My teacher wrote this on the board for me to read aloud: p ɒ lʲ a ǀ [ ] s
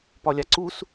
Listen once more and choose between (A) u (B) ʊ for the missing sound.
A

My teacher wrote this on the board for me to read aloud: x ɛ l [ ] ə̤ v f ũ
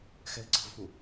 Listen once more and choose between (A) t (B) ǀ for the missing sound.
B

